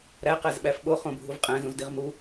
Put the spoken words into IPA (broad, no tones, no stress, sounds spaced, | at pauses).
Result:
ɾ æ q æ z ɓ æ f ɓ o χ õ bʱ u v qʼ æ̃ z ũ z d i ʁ m u